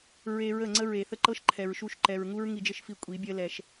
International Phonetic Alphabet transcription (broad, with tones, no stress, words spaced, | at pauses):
ɹe˧ ɹə˦˨ŋ͡ǀə˦ ɹe˨θə˦ǃɤ˦ʃ ǃʰɛ˨ɹʃu˦˨ʃ ǃɛ˨ɹŋu˦ɹ ŋi˧d͡ʒɘ˦ʃfi˧ kʷʼi˨˦bʲɜ˦lɛ˧ʃ